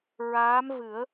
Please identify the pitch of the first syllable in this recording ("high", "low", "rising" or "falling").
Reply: rising